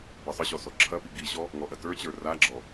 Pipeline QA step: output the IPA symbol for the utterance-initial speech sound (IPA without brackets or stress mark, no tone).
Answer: b